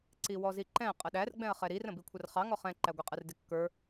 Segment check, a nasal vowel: present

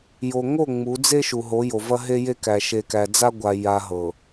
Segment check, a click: absent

